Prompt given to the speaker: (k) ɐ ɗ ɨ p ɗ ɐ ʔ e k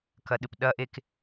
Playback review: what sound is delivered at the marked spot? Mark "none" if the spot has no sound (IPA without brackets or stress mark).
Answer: k